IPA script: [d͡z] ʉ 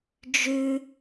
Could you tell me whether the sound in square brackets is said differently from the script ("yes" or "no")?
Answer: yes